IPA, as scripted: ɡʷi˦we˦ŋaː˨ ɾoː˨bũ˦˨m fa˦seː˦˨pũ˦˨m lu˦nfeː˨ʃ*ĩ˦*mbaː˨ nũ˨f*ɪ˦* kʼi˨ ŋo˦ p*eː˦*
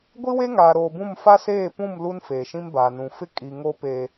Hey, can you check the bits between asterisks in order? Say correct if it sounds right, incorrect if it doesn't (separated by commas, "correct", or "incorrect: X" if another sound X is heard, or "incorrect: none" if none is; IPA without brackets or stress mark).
correct, correct, incorrect: eː˨